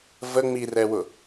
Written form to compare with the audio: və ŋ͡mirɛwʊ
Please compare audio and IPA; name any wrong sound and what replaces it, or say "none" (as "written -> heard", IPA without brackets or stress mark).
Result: none